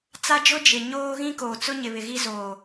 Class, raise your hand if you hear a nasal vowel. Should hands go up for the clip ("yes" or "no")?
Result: yes